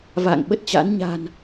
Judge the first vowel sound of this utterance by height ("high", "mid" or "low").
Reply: low